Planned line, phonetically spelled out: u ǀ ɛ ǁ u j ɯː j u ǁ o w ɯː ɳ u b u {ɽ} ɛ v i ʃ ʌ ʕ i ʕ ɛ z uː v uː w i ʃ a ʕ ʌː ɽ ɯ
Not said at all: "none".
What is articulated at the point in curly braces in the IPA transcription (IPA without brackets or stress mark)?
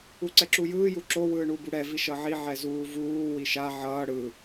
ɽ